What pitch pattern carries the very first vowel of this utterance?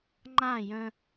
falling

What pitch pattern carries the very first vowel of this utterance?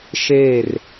falling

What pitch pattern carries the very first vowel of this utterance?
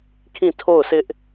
falling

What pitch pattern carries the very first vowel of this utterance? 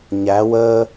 rising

